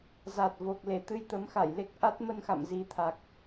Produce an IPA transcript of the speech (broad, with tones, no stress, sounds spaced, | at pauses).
z a˨˩ t̚ v o˨˩ k̚ l e˧˩ t̪ ɨ˧ j t̪ ə˨˦ m x a˧˩ j l e˦˥ k̚ ʔ a˦˥ t̚ m ə˧ n x a̰˧˨ m z i˨˦ t̪ʰ a˨˩ k̚